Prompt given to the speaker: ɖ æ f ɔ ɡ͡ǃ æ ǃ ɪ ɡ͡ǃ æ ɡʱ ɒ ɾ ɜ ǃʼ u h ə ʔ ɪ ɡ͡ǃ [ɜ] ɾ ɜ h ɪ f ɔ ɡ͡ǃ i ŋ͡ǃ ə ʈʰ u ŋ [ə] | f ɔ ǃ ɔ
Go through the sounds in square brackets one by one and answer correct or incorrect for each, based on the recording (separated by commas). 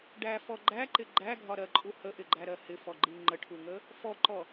incorrect, correct